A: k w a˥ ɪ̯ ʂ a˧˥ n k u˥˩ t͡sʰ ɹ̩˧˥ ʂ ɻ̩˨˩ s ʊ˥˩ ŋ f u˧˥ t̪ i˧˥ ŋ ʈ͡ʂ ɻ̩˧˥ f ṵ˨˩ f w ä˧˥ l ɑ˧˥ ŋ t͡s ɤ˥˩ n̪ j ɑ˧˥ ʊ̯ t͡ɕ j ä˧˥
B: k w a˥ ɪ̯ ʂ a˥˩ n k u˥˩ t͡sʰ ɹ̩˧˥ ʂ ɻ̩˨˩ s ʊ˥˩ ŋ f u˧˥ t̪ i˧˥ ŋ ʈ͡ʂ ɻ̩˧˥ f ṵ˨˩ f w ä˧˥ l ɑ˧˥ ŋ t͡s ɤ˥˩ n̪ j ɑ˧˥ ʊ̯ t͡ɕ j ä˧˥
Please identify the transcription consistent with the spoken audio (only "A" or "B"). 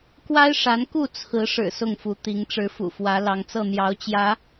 A